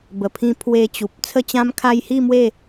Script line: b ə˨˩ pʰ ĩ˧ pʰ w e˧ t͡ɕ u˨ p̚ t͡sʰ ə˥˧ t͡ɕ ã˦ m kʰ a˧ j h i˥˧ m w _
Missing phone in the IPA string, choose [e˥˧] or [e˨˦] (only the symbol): e˥˧